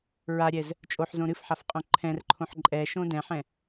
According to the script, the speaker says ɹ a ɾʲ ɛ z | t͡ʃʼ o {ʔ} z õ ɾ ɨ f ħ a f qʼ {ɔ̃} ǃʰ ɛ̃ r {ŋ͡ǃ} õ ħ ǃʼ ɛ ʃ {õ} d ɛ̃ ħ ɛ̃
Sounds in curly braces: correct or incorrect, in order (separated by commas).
incorrect, incorrect, incorrect, correct